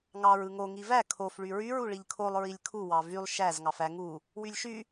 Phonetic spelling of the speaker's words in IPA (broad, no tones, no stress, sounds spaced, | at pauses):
ŋ ɑ ɹ ɯ ŋ o ŋ i v æ kʰ o f ɭ y ɹ y ɹ u ɭ i ʎ kʰ o lˠ ɹ i lʲ kʰ u w ɑ v y lˠ ʃ æ z ŋ ɑ f æ ŋ u | w y lʲ ʃ y